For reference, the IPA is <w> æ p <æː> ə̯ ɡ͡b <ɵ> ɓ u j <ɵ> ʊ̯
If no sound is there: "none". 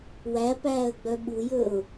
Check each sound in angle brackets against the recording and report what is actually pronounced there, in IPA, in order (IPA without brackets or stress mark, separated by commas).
w, æː, œ, ɵ